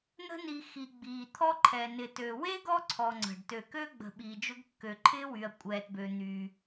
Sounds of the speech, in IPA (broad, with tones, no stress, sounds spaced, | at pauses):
n̪ ə̤˦ n i˨ x i˨ ɡ͡b iː˨ t̪ʰ ɔ˥ ǃʰ ɛ˨ n ɪ˨ t ø˨ w e˥ ɡ ɔ˦ ǀʰ ɔ˨ ŋ͡ǀ ə̤˩ ɖ t ø˨ k ø˥ ɡ͡b ə̤˨ ɓ iː˨ d͡ʒ ʊ˦ ɡ kː ø˨ ǃʰ ɪː˥ w y˨ ɐ̯ kʷʼ ɛː˨ t b ø˨ n̪ y˨